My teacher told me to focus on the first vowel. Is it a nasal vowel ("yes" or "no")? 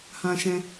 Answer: yes